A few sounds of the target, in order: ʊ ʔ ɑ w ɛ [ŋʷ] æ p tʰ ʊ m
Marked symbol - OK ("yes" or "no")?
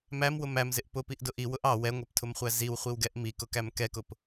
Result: yes